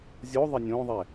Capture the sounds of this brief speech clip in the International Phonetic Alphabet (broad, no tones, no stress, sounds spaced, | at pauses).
zʲ o ðˤ e nʲ õ ðˤ ɛ